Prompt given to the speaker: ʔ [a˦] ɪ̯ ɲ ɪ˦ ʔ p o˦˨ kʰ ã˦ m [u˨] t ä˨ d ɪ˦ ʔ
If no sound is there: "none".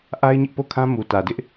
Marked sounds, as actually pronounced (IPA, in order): a˦, u˨

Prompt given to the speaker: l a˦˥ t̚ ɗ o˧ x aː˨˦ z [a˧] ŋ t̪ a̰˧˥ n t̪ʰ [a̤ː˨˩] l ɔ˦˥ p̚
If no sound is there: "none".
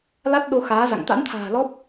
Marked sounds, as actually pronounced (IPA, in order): a̰˧˨, a̤ː˨˩

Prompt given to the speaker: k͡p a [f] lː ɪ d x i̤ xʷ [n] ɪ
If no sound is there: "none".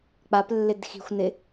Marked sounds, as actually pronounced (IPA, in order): p, n

